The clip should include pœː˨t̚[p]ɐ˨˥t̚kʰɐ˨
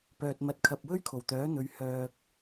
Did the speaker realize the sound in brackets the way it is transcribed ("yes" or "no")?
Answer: no